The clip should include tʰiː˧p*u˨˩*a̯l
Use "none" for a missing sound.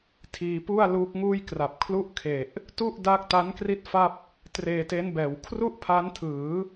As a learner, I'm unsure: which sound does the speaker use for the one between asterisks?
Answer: u˥˩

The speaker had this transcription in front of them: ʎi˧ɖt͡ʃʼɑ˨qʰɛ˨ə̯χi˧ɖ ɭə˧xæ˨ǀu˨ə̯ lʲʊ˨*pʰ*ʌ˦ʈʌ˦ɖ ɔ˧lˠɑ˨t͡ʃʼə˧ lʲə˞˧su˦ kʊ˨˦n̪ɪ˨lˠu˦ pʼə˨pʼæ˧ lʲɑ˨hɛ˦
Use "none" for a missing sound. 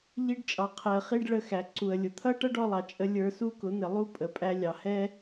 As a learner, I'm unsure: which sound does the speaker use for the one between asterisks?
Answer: t̪ʰ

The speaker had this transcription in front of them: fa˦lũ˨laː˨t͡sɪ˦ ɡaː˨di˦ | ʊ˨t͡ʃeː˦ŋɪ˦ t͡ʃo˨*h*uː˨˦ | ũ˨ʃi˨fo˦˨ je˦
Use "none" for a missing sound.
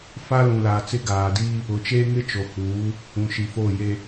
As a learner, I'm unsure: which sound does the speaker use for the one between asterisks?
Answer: h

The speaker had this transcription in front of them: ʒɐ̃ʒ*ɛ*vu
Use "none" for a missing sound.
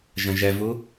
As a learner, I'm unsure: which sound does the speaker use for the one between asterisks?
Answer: ɛ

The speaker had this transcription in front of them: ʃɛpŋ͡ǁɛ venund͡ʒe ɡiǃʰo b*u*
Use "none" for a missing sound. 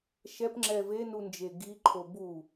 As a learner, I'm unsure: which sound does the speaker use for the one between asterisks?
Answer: u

